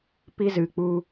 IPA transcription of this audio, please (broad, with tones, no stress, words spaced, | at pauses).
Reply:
pi˧ zɨ˨k͡pu˧